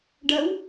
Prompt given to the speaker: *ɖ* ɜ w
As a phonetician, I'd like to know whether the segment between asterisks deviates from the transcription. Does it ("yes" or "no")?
no